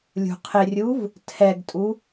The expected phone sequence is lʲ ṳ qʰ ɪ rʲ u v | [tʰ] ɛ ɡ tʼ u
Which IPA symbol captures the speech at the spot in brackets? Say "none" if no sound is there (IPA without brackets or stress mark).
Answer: tʰ